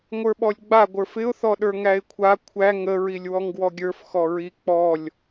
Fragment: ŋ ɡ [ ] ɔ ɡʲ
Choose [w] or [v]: w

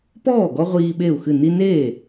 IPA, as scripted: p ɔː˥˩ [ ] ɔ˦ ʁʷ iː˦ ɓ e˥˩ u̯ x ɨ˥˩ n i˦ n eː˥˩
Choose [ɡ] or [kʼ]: ɡ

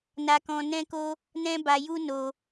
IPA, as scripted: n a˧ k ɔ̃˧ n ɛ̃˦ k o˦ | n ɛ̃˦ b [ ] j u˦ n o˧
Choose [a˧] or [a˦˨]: a˧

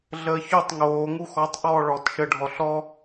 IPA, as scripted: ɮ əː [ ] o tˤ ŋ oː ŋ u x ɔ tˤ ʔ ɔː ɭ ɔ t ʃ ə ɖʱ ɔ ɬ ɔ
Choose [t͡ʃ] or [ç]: ç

